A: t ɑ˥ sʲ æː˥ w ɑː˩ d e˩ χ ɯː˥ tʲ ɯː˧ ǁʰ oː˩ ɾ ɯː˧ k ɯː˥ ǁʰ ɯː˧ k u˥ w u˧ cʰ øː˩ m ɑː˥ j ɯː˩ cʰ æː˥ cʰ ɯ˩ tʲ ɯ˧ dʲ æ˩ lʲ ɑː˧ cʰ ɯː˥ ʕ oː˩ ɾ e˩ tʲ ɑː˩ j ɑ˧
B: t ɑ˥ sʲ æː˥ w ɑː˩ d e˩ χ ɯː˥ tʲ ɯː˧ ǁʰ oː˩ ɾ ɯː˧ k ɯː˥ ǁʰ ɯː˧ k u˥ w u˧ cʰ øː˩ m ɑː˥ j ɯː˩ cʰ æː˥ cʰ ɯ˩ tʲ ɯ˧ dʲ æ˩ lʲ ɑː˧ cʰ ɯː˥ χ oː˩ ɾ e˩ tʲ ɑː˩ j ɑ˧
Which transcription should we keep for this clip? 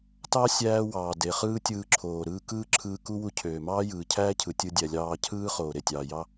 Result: B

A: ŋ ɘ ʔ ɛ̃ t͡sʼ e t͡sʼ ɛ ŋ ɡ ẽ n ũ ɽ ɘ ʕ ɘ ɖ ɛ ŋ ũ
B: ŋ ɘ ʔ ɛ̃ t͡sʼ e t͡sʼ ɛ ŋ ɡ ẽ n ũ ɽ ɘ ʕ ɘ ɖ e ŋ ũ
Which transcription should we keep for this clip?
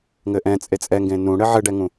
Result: A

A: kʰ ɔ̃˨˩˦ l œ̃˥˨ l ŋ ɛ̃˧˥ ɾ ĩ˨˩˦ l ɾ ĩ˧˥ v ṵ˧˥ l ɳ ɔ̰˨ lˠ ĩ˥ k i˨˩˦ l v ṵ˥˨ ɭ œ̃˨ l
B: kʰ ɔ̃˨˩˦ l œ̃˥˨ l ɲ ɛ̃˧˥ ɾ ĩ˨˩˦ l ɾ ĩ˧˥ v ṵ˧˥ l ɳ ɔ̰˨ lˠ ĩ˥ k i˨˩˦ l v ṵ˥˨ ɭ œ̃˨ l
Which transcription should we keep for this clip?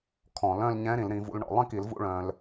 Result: B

